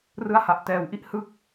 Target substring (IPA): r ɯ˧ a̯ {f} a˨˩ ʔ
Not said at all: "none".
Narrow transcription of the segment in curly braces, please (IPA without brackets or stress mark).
h